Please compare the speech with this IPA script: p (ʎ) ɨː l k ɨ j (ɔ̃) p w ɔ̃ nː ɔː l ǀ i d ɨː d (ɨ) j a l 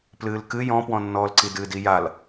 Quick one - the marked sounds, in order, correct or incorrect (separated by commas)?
incorrect, correct, incorrect